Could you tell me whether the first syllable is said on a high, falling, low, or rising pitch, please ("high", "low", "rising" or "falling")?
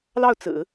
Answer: falling